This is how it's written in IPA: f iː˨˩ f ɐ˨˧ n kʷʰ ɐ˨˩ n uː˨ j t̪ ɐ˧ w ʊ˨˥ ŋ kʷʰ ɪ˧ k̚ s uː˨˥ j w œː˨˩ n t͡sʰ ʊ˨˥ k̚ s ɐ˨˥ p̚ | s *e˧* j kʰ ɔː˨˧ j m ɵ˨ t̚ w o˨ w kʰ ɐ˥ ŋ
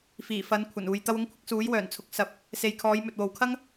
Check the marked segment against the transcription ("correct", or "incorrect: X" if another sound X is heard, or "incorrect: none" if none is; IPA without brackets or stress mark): incorrect: e˨